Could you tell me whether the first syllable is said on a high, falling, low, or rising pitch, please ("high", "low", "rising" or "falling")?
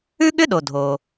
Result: high